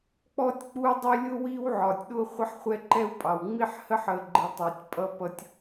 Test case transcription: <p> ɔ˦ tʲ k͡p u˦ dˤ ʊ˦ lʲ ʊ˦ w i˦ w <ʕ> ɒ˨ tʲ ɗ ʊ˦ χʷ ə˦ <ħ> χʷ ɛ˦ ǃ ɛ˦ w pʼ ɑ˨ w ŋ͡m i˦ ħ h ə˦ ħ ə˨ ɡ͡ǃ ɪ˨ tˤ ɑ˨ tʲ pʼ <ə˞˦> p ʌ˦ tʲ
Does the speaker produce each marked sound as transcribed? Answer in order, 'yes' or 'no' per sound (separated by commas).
no, yes, yes, no